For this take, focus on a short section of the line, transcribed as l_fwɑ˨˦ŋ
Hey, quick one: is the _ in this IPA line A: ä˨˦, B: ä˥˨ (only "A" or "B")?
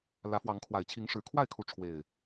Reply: A